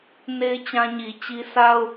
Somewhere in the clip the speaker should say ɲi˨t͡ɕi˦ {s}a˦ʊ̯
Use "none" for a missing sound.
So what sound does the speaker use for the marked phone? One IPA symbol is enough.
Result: s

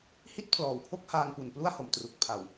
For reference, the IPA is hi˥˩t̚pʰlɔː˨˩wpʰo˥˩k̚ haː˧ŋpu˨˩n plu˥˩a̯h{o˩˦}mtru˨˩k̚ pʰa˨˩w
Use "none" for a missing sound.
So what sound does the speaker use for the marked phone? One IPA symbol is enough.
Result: o˩˦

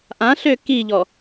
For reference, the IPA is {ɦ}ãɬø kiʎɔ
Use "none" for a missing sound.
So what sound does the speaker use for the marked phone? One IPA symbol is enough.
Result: ʔ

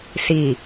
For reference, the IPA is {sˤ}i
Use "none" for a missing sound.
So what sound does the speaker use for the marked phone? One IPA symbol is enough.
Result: s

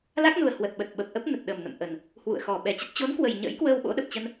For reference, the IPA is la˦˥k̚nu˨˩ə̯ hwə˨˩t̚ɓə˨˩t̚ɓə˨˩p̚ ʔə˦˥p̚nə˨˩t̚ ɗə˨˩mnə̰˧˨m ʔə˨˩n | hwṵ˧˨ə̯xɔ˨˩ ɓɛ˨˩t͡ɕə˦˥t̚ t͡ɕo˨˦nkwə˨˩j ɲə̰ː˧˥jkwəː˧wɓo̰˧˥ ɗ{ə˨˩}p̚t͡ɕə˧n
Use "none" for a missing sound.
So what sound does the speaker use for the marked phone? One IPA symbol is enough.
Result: ə˨˩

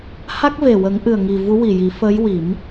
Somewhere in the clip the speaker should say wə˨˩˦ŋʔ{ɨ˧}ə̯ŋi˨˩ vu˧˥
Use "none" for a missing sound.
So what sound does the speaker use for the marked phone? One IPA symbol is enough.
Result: ɨ˨˩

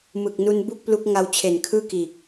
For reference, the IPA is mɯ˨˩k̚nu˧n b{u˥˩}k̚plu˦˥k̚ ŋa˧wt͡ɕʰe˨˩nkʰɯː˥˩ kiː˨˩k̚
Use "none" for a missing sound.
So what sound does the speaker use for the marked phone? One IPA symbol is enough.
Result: u˥˩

